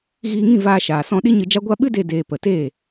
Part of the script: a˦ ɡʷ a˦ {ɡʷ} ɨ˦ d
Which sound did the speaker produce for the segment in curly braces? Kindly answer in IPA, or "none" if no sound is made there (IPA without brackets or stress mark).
ɓ